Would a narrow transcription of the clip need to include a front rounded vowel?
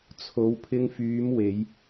yes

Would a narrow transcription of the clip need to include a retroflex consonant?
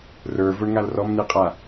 yes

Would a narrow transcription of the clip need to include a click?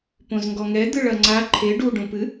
yes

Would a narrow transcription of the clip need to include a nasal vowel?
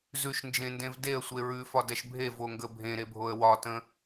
yes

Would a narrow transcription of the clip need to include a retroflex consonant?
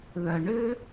yes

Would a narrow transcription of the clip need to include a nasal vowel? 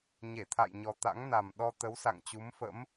no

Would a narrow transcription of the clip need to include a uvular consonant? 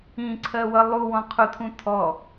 yes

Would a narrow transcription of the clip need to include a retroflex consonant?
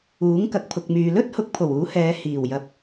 no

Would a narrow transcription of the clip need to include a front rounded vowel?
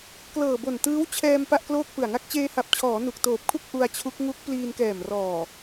no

